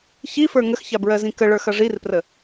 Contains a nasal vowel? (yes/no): yes